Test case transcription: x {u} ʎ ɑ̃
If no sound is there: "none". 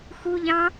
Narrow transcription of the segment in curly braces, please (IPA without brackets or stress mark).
u